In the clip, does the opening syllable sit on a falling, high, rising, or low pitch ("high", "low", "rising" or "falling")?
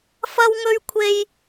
high